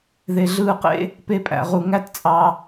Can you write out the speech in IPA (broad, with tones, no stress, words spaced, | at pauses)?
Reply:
ðe˨ɮɯː˧qḛ˦ | pe˧pʼæ̰˨ʁu˨ ŋæ˦tt͡sʼɑ˧